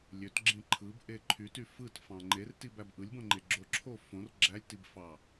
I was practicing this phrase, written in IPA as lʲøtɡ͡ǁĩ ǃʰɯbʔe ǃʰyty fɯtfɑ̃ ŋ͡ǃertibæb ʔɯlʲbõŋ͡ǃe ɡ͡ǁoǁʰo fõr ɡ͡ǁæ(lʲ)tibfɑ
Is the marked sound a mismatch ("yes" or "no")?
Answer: no